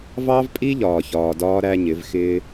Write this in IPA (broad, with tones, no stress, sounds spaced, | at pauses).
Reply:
v ɑ˦ v pʼ i˦ ʎ ɒː˨ ç ɒː˨ d ɒː˧ ɾ æ˧ ɲ ɪ˨˦ v x ɪː˦